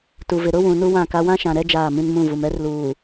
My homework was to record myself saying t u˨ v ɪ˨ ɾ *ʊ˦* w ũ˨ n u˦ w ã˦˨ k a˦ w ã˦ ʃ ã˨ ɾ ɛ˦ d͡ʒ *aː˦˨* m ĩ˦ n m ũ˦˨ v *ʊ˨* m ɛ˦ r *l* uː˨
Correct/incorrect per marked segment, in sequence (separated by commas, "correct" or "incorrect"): correct, correct, incorrect, correct